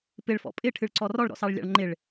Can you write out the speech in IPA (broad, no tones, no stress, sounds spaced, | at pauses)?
p ɪ ɭ f ɔ̰ pʼ ɪ ʈʰ ɨ ɭ ǀ ɔ r ɔ ɭ ɾ ɔ̰ s ɑ ɭ lʲ ɑ̰ ɭ ŋ͡ǃ ɪ ɭ